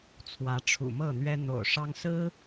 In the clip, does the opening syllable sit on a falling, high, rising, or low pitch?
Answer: rising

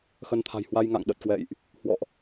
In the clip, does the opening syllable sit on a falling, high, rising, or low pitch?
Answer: rising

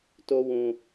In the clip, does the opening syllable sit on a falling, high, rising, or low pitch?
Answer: high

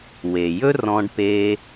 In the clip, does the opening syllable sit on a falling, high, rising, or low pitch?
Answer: low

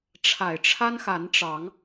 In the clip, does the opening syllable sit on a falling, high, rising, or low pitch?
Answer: low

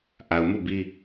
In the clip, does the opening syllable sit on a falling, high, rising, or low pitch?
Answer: low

